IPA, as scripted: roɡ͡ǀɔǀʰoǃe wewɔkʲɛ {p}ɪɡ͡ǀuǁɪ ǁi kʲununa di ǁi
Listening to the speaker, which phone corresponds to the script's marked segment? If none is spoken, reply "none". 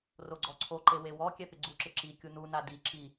p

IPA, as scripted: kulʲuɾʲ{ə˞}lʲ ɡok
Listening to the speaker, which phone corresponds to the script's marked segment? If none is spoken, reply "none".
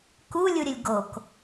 ə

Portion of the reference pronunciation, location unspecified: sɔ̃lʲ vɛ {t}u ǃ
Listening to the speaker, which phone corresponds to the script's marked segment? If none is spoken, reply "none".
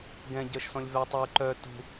tˤ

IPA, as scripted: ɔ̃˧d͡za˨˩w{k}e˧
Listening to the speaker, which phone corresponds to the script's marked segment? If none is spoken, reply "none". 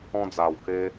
k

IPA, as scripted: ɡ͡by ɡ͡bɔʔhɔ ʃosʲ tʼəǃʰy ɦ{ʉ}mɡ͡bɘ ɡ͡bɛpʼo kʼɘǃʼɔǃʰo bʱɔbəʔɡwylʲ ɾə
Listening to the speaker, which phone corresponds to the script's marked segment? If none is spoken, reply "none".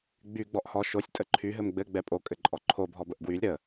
ɘ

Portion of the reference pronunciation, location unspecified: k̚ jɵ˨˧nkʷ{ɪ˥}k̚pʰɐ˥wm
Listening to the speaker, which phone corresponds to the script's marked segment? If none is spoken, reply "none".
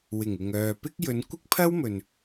ɪ˥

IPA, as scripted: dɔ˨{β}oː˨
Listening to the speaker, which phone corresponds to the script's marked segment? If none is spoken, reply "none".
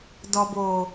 b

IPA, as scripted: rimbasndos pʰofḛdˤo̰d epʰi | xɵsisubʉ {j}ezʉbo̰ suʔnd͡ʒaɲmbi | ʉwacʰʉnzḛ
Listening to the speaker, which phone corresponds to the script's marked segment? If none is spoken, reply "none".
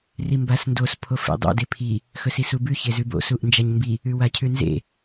ç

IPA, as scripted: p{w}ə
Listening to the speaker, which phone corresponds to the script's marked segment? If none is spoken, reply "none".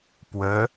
w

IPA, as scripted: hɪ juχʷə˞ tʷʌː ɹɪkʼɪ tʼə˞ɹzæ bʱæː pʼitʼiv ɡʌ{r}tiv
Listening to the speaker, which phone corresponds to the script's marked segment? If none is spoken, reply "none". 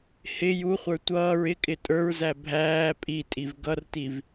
r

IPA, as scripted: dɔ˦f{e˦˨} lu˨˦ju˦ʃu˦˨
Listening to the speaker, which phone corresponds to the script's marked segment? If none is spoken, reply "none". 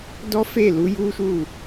e˦˨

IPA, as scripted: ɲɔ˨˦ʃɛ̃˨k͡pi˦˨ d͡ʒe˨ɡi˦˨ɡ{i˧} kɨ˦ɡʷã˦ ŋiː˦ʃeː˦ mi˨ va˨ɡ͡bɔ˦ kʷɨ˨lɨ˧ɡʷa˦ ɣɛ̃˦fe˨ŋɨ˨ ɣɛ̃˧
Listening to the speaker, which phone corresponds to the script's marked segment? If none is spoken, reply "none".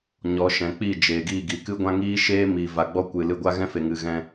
i˨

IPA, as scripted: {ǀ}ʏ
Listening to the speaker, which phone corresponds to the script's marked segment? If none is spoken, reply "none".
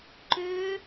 ǃ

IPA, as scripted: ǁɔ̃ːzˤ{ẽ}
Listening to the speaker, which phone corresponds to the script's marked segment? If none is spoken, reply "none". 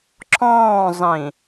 ĩ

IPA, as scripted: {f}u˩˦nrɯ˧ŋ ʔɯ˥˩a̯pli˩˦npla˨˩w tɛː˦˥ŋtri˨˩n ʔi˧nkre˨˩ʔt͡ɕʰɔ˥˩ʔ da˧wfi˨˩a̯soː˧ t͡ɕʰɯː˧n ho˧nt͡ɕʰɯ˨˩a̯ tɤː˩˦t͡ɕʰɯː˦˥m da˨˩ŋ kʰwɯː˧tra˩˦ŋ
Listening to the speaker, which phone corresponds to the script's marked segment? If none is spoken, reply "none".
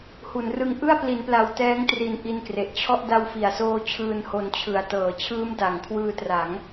h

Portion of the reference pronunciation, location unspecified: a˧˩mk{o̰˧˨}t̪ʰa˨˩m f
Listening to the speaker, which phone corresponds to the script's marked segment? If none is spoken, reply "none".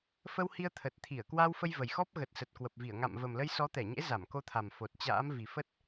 o˧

